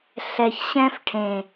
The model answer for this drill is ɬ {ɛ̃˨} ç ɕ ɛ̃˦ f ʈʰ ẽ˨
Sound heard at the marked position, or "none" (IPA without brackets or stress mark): ɛ˨